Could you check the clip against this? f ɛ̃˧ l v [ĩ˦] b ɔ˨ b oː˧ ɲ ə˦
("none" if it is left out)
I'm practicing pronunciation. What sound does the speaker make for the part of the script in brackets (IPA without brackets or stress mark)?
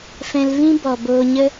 ĩ˦